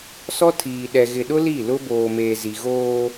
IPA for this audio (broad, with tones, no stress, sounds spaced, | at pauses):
s ɔ˦ tʰ iː˨ ɗ ɛ˨ ɣ ɪ˨ ɗ ʊ˦ l i˦˨ l ʊ˦ b oː˨ m eː˨ z i˨ ɣ oː˦